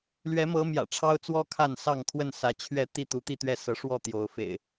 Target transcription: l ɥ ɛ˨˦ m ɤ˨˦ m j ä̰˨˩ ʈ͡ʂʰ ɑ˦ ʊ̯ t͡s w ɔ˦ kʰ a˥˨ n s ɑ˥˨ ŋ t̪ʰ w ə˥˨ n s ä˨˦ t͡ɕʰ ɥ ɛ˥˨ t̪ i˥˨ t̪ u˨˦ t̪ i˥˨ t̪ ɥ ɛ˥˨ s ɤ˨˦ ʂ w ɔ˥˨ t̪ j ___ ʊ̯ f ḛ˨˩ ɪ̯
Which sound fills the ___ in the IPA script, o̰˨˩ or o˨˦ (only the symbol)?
o˨˦